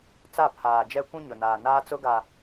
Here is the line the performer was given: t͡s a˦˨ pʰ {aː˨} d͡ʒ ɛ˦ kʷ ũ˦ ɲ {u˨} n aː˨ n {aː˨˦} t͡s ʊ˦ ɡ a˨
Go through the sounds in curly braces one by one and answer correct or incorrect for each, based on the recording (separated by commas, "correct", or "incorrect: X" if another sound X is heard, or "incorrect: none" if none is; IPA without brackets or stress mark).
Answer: correct, incorrect: ʊ˨, incorrect: aː˦